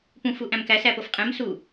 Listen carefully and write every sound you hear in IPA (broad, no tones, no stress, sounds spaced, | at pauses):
p ũ f u ʔ æ̃ m k æ s æ p o f qʼ ẽ m s u